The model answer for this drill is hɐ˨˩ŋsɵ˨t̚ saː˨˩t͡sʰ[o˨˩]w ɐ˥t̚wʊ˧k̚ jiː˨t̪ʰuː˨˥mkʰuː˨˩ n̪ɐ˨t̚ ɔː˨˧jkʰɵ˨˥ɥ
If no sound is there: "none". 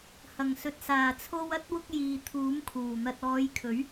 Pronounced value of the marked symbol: o˧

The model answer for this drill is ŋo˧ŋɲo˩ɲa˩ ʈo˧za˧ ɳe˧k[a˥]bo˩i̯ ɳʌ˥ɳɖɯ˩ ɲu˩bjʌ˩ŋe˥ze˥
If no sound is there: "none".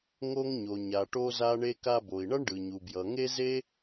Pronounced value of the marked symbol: a˧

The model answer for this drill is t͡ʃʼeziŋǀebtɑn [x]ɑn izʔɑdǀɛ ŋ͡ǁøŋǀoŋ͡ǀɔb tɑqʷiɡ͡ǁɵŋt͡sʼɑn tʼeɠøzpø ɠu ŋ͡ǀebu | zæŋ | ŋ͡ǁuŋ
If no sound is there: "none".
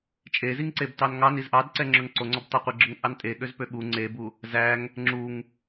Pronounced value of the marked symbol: ŋ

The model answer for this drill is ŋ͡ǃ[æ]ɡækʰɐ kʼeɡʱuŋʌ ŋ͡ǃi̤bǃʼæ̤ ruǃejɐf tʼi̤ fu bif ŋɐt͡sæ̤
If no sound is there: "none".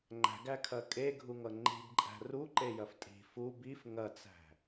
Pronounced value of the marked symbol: æ̤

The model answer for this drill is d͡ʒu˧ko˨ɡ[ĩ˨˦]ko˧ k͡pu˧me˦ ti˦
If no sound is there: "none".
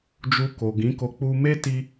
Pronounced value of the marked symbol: ĩ˨˦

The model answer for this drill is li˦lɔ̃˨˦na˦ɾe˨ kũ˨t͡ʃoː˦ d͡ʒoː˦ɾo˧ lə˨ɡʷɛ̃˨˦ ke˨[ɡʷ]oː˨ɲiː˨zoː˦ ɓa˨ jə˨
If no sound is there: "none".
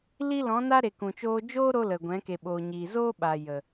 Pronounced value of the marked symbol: ɓ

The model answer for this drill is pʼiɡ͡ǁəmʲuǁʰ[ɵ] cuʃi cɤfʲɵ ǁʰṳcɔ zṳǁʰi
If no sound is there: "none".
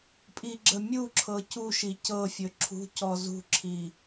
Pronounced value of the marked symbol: ɤ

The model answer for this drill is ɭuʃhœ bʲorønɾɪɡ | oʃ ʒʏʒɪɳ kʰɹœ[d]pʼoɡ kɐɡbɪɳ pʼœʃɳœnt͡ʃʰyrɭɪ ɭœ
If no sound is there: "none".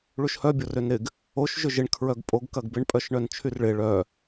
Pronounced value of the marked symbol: ɡ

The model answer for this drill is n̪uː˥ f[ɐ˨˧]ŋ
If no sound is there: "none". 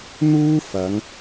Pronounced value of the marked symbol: ɐ˨˧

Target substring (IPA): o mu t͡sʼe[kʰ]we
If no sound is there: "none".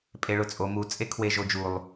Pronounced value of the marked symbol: kʰ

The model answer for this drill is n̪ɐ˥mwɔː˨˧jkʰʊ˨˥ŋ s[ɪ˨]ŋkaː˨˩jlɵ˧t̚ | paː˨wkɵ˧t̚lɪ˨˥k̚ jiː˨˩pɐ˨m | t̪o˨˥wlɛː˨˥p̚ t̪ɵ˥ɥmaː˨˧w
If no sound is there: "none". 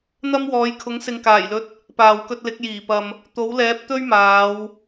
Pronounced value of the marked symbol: ɪ˨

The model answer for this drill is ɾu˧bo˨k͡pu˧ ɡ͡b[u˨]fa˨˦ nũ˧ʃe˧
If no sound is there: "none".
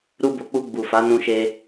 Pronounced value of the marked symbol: u˨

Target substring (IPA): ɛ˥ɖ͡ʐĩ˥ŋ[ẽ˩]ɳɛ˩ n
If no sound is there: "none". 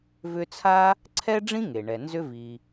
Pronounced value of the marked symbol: e˩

